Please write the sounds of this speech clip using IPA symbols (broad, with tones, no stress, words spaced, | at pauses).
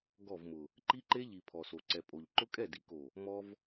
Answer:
ɡɔ˦˨vmʊ˨ | ǃi˦ ǃe˦ʎi˨ pʰɔ˨so˨ǀɛ˨ pʼo˨ʎ ǃʊ˦kʼɛ˦˨di˨ ko˨ | mɔ˦v